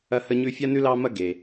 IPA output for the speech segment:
ɐ˥ h ə˥ ɲ ʉ˥ fʲ a˥ n ʉ˥ l ɑ˥ m ɐ˥ ɡ e˩

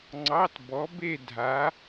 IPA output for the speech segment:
ŋ͡ǀ ɑ˧˥˧ t b ɔ˨˥ b e˥˧ dʱ a˨˥

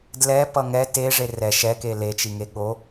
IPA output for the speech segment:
d l ɛ p ʌ ŋ ɛ t e ʐ e r ɛ ʃ ɛ k e l e t͡ʃ i ŋ e ɠ o

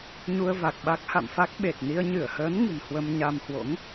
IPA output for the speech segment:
ɲ u˧ ə̯ v a˨˩ k̚ ɓ a˦˥ k̚ h a̰˧˨ m f a˦˥ k̚ ɓ e˨˩ t̚ n i˧ ə̯ ɲ ɨ˧˩ ə̯ h əː˨˦ n ŋ ɨ̤˨˩ n h w ə˧ m ɲ a˧ m h w o̰˧˥ ŋ

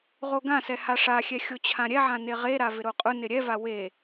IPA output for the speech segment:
ʁ o ɡ ã s ɛ h a ʂ a xʲ ɛ xʲ o t͡ɕʰ ã ɾʲ ɛ ʕ ã n e ʁ e ɾ a v ɪ ɾ o qʼ ʊ n ɪ ɾʲ ɛ v a w e

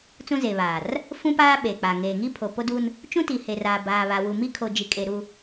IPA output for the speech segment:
t͡s ũ˦ z e˨ β aː˨ r | f ũ˦ p aː˦ ɓ e˨ k͡p a˨ ŋ eː˨ ŋ i˦ pʰ o˨ p o˦ d u˦ n | t͡ʃ ũ˦ t i˨ h e˨ r aː˨ b aː˨ β a˨ w u˨ m i˦ kʰ o˨ d͡ʒ i˨ kʼ e˨ ɾ u˨

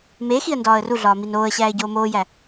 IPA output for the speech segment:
m e x i ə̯ n d ɒː ə̯ r u ɮ ɒː m i n oː ə̯ ɕ æː ɪ̯ ɟ oː m oː j æ

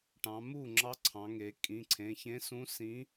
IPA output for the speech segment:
ʈ ɑ̃˩˧ m u˥˩ ŋ͡ǁ ɑ˧˥ ǀʰ ɑ̃˩˧ ŋ e˩˧ kʼ ĩ˩˧˩ ǀʰ ẽ˩˧˩ ç ẽ˧˥ s ũ˧˥ s ĩ˧˥

